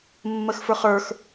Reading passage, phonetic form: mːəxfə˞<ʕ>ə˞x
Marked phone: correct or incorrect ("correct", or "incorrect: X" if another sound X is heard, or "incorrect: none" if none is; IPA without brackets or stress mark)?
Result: incorrect: χ